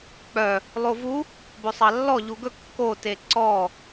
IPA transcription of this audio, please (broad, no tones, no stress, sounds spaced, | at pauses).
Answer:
k͡p œ | lˠ o v u | b ɵ sˤ ɑ lː ɔ ʎ u ɡ ɵ kː o t e ǀ ɔ